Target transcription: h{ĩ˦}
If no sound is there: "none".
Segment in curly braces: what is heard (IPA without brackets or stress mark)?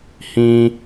ĩ˦